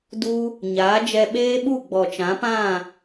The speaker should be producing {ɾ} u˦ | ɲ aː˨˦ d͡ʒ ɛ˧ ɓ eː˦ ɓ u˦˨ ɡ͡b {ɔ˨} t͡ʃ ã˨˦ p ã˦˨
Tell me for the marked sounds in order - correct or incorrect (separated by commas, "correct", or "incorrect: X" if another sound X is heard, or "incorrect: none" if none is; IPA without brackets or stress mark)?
incorrect: d, correct